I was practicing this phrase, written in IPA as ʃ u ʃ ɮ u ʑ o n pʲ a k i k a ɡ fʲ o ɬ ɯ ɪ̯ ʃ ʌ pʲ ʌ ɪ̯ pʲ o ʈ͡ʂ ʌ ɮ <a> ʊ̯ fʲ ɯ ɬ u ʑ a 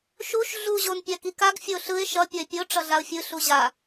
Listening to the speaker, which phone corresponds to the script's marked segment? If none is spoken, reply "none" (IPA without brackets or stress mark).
a